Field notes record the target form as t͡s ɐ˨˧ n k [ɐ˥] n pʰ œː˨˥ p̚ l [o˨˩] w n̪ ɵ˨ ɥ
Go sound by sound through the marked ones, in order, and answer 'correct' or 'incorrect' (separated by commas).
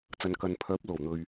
incorrect, correct